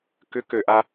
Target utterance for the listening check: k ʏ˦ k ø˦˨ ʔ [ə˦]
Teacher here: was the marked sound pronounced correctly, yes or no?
no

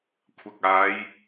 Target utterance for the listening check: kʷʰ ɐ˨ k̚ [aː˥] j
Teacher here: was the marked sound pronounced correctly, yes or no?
no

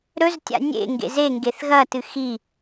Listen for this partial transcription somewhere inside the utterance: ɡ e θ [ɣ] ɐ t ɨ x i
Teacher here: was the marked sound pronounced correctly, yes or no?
yes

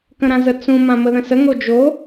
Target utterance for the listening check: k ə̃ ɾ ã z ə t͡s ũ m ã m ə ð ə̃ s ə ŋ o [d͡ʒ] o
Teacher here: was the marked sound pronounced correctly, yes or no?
yes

